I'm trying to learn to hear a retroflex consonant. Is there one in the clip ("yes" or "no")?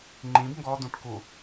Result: yes